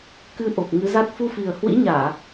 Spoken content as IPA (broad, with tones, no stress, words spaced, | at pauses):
kɨ˧ʔo˨˩p̚ ŋɨ˨˦za˦˥t̚ fu˧fi˨˩ə̯ hwḭ˧˥ɲaː˧˩˨